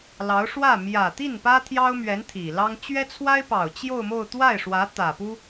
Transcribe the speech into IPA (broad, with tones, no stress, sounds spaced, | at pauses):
l ɑ˧˥ ʊ̯ ʂ w ä˥˩ m j ä˨˩ t̪ i˥˩ n p ä˥ t̪ʰ j ɑ˥ ʊ̯ m ɥ ɛ˧˥ n t̪ʰ i˨˩ l ɑ˥ ŋ t͡ɕ ɥ ɛ˥ t͡sʰ w a˥ ɪ̯ p ɑ˨˩ ʊ̯ t͡ɕ j o˥˧ ʊ̯ m o˥˧ ʊ̯ t̪ w a˥˩ ɪ̯ ʂ w ä˧˥ t̪ ä˨˩ p u˥